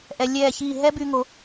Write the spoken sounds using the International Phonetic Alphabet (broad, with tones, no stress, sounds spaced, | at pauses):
ʔ ɛ˩˧ lʲ ɛː˧˩ ç iː˧˩ ɦ ɛ˥ b y˧ ŋ o˩˧